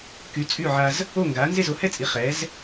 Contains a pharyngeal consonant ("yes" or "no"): yes